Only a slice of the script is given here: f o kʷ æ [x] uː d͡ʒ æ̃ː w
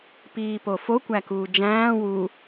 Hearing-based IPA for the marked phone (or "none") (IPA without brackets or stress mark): k